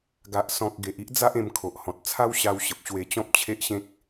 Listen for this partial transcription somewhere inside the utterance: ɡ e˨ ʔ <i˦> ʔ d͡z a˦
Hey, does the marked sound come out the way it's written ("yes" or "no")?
yes